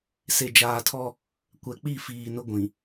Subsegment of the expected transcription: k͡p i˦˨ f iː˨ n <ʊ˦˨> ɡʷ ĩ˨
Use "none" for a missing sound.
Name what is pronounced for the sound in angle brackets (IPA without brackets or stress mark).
ʊ˦